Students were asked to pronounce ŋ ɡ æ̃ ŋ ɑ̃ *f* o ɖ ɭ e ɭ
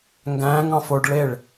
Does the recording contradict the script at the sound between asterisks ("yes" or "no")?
no